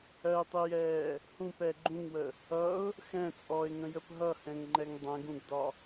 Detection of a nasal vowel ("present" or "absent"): present